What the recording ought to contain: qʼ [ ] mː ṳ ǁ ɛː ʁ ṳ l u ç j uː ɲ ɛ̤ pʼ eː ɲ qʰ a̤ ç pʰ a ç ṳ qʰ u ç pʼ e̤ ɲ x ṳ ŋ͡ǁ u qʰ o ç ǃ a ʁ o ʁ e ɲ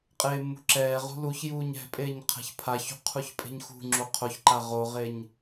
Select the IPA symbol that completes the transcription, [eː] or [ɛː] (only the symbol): eː